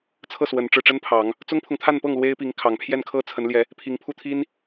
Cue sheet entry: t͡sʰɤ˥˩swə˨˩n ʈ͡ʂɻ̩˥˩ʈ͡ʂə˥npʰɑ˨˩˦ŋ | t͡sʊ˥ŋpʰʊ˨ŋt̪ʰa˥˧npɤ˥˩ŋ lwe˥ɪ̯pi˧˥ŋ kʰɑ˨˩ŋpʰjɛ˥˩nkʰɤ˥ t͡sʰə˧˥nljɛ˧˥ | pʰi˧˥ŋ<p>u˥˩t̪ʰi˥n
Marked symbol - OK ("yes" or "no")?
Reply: no